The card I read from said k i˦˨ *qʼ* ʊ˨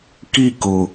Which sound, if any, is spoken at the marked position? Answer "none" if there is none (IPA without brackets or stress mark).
k